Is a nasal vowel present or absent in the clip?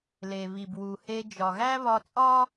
absent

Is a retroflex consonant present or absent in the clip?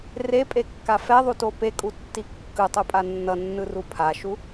absent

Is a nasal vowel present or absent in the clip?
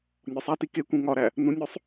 present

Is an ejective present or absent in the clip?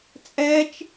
present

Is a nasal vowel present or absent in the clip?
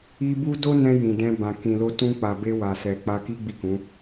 present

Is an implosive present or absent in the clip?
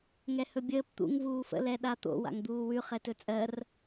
present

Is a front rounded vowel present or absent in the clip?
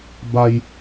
absent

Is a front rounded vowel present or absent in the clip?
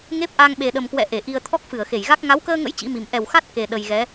absent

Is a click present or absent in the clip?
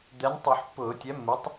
absent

